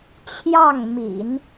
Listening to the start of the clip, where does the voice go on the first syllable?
falling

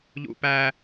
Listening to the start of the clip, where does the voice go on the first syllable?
high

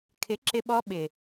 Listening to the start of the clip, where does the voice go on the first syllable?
rising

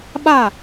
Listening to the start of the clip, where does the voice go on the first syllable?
falling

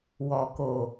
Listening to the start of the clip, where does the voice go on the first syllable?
low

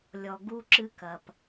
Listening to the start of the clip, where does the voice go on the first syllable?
low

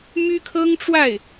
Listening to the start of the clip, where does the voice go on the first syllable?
high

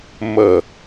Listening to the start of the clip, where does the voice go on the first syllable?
falling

